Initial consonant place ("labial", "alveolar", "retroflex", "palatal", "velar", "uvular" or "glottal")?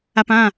labial